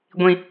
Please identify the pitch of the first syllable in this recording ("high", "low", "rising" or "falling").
low